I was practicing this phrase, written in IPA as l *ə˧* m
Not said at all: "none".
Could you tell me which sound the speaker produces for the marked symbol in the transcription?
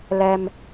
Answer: ɛ˧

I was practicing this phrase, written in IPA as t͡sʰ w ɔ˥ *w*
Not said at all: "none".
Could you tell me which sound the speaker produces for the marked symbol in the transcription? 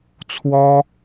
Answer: none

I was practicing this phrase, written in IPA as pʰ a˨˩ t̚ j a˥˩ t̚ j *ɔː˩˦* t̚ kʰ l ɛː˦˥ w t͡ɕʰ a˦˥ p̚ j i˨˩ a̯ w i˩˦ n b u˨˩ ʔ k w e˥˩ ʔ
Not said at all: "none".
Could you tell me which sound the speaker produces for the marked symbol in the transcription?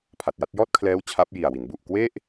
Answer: ɔː˥˩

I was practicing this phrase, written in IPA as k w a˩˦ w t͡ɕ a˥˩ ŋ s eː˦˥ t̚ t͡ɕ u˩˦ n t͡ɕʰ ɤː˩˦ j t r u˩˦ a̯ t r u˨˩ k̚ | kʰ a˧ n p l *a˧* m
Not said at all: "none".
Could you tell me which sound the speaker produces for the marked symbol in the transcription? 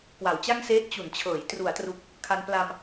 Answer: a˧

